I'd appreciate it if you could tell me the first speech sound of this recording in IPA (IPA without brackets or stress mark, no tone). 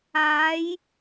aː